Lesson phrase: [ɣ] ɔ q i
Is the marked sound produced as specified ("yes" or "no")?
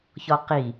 no